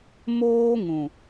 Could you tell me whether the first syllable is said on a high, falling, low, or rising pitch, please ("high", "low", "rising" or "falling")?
high